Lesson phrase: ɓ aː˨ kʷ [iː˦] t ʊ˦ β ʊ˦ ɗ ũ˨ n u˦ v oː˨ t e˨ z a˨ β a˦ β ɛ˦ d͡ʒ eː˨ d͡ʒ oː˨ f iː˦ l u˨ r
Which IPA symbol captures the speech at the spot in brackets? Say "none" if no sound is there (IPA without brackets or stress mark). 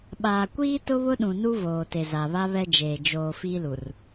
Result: iː˦